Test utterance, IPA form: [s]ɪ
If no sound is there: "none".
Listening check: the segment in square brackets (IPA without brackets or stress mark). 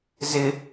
z